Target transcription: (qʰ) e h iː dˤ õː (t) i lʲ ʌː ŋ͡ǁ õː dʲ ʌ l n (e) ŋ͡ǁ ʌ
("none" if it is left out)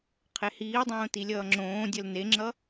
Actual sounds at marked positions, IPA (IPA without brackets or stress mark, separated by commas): qʰ, t, e